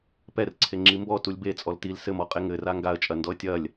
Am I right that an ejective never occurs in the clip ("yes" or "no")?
no